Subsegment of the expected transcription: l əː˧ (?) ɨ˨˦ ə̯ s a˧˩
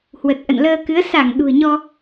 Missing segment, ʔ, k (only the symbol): k